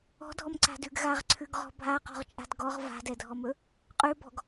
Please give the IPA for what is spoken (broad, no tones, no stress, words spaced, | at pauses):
ɔ̤dʱɔmǀa̤dʉɡ ɣaʁǀʰʉɡʁɔ̤ bʱaqɔ̤ʁt͡ʃʼa̤d ɡɔʁ va̤dɛdʱɔmɵ | qʼʉbɔ̤ɡ